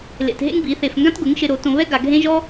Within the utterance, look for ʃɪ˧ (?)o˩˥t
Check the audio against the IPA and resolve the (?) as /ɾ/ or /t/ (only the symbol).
ɾ